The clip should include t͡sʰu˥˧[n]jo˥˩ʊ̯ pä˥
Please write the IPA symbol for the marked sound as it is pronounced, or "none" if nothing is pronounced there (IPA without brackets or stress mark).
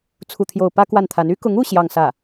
t̪ʰ